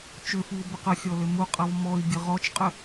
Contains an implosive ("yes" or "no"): no